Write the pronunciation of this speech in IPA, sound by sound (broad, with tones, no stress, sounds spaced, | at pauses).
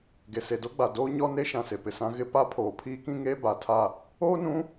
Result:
ɡ e˨ s e˨ d o˦ ɡ͡b a˨ d oː˦ ɲ ɔ˦ n e˦ ʃ ã˨ s e˨ p ɪ˨ s ã˦ ɣ ɪ˦ p a˦ pʰ oː˨ pʰ iː˦ k ĩ˦ ŋ eː˦ b a˨ tʰ a˦˨ | oː˦ n ũ˨˦